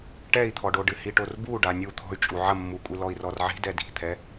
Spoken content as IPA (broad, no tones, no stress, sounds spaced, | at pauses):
ʈ ɛ i̯ t̪ʰ ɔ ɖ o ɖ ɨ h i ʈ o r b u ɖ a nʲ u t̪ʰ ɔ̤ y̯ t͡ʃʼ u ʕ ɐ mː u kʷʼ i l ɔ i̯ r ɔ r ʕ i̤ d ɛ d i̤ t̪ʰ ɛ